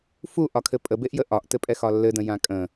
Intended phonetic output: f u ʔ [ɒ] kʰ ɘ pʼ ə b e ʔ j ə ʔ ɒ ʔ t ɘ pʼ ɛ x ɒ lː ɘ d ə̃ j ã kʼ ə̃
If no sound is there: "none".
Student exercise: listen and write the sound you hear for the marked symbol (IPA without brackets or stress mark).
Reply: ɒ